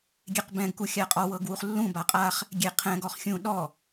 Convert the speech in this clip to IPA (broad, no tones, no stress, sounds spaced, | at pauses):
ɡʲ e q b ɛ̃ ɡ k u xʲ a qʼ ɔ w ɤ ɡ w u χ lː ũ b a qʼ a χ | ɡʲ e qʰ ɛ̃ ɡ ɔ χ xʲ ũ ɗ ɔ